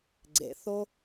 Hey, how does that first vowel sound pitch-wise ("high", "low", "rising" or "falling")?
low